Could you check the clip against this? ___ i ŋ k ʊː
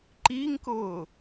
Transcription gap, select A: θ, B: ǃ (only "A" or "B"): B